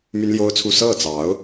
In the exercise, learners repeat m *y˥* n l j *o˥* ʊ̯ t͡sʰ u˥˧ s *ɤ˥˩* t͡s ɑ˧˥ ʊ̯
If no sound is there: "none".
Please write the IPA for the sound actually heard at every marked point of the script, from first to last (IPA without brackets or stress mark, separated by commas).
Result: y˥, o˥, ɤ˥˩